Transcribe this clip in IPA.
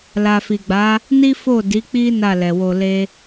la˨fi˨ɡ͡ba˨˦ | ni˦fo˦˨ di˨˦k͡pi˦ na˦˨lɛ˨ wo˧le˦

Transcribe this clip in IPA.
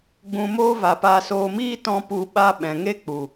ɡ͡bũ˨moː˧ va˨pa˧soː˧ miː˦tɔ̃˧ pu˨ɓa˧ ɓɛ̃˨ŋe˦k͡pu˨

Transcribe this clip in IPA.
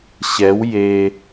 ɕɛw je

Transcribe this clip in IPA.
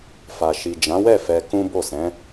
fa˨ʃi˨d͡ʒã˨˦wɛ˦˨ fɛ˧kũ˦bo˦˨sɛ̃˨˦

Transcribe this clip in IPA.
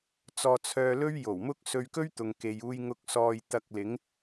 t͡sɔː˧t͡sʰœː˧lɵ˥ɥ jo˨˩w mʊ˥k̚ sɵ˧ɥkɵ˥ɥt̪ʊ˨ŋ ke˨j uː˧jŋʊ˧k̚sɔː˧j t̪ɐ˧k̚ lɪ˨˧ŋ

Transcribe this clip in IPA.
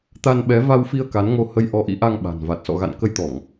t̪a˧nɓɛ˨˦ va˧wfi˧ə̯ ka˨˦nŋo˧ hə˧j ʔɔ˨˦ʔḭ˧˥ʔa˧ŋ ɓa̤˨˩nva˨˩t̚ sɔ̰˧˨ɣa̰˧˨nkə˧jt̪ɔ˧˩˨ŋ

